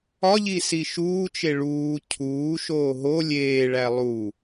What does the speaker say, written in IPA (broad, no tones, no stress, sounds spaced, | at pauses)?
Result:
ɒ ʎ i s i ʃ uː t͡ʃ e ɭ uː cʰ uː ʃ oː ɦ o lʲ eː ɭ æ lˠ u